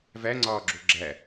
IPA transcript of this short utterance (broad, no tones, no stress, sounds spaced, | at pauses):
v æ ŋ͡ǀ ɒː ɡ͡ǁ o ɡ͡ǁ æ